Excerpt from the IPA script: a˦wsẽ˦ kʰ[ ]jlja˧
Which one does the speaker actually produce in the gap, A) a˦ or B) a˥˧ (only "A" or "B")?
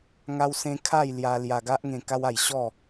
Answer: B